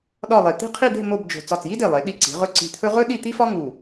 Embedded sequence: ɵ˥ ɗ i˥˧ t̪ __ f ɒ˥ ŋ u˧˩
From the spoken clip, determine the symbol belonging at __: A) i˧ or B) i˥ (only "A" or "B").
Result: B